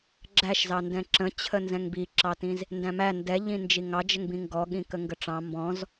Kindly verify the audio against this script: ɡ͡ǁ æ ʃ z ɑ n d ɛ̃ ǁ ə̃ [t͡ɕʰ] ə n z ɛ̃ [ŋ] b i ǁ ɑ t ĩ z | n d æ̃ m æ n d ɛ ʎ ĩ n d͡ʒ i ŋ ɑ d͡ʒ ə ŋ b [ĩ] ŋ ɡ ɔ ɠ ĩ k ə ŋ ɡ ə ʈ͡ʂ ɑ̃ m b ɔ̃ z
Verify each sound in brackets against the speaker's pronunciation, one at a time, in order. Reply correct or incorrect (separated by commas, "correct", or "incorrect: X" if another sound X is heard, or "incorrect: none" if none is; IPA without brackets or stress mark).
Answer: correct, correct, correct